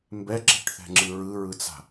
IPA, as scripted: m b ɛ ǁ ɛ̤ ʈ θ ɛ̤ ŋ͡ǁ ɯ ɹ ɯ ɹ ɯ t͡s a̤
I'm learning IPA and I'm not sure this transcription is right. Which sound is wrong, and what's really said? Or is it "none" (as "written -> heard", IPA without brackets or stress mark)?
none